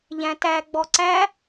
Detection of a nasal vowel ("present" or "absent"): present